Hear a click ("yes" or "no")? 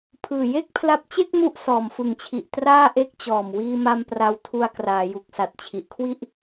no